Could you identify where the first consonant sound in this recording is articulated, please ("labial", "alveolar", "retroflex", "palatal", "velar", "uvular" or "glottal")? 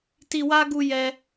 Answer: alveolar